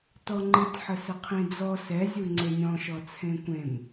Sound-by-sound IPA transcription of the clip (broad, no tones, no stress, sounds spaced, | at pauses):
t ɔ ŋ͡ǃ ɨ tʲ ħ ə s ə qʰ ĩ d͡z ɔ s ɛ zʲ u ŋ͡ǀ e nʲ ɔ̃ ʃ ɔ t͡sʰ ẽ kʷ ẽ m